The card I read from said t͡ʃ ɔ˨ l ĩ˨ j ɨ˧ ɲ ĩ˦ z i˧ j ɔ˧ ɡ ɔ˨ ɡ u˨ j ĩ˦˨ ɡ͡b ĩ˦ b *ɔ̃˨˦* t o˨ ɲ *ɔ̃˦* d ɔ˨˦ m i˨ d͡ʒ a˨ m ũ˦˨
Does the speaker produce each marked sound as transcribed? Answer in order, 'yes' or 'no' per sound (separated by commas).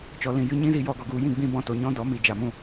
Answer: no, yes